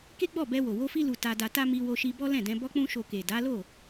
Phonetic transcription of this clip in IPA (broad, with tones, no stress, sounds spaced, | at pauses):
k e˦ ɡ͡b ɔ˦˨ b ɛ˧ w o˨ w o˧ f i˧ l u˨ t a˧ d a˧ t a˦ m i˧ w o˧ ʃ i˧ b ɔ˦ l ɛ̃˦˨ d ɛ̃˧ b ɔ˦ k͡p ũ˦ ʃ o˧ k e˨ d a˨˦ l o˦˨